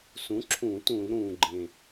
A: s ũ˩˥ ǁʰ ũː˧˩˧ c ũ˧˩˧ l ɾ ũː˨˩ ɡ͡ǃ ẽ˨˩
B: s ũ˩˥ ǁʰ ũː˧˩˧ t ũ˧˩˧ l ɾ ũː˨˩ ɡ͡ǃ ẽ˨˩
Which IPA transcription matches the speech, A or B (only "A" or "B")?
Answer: B